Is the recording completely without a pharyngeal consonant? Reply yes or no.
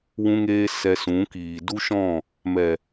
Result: yes